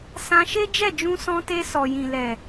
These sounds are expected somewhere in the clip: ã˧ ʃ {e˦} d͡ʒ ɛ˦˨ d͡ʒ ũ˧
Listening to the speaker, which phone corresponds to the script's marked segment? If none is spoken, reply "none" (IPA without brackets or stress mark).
e˦